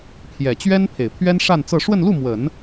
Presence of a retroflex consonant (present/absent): present